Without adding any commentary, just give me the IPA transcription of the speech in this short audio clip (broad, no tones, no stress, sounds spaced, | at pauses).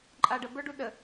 ǃʼ a ɖ ə b ə˞ ɖ u ɗ ə